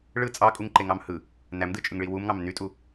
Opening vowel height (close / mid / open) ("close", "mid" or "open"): close